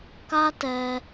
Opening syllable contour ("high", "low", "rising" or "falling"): high